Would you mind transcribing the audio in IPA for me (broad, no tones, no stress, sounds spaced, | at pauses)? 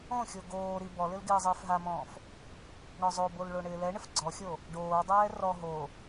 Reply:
õ xʲ o ɡ oː ɾ i b ɔ l ɪ l ɡ ɪː zˤ ɪː f ɦ a m ɔ̃ː f | ɳ ɔ zˤ o b o l ɭ o ɳ ɪː l ɛ ɳ ɪ f ɡ͡ǀ ɔ xʲ o | ɖ oː dˤ ɛː r ɔ ɦ o